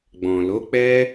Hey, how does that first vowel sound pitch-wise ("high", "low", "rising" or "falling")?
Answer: low